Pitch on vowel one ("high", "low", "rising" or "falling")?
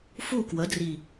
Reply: falling